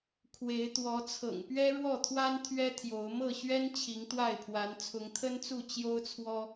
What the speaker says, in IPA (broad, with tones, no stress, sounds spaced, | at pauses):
kʰ w e˨˦ ɪ̯ t̪ w ɔ˨˦ t͡sʰ ɤ̰˨˩ ŋ p ɥ ɛ˦ ɻ w ɔ˥˨ t̪ʰ w a˦ n t̪ʰ ɥ ɛ˦ t̪ʰ j o˨˦ ʊ̯ m ɤ˥˨ ɕ ɥ ɛ˦ n t͡ɕʰ i˨˦ ŋ t̪ w a˥˨ ɪ̯ pʰ w a˨˦ n t͡sʰ ʊ˨˦ ŋ t̪ʰ ə˦ n t͡s u˥˨ t͡ɕ j o˦ ʊ̯ t͡sʰ w ɔ˦